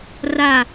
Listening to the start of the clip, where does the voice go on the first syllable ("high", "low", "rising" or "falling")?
falling